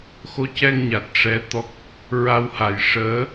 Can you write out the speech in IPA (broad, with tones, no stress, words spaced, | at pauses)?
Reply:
xo˧cɛ˧ŋɲa˨˩t̚ ʂɛ˧˥t̪ɔ˦˥k̚ | ɹa˧wha˨˩jʂəː˧˥